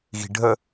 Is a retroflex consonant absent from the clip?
no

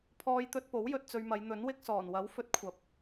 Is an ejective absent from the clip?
yes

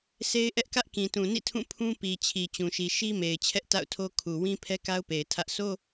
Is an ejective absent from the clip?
yes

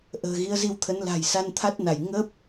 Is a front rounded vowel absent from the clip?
yes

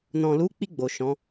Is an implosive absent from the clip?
yes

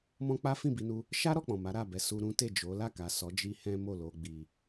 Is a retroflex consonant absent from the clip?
yes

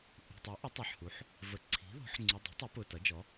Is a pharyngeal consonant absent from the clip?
no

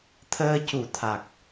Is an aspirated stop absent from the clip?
no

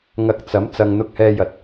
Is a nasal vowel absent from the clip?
yes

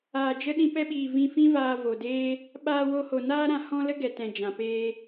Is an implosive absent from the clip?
no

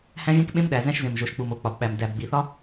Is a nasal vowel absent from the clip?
no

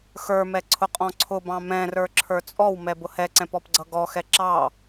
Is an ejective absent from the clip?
no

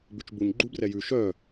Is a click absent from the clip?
no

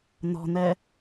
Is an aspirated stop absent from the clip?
yes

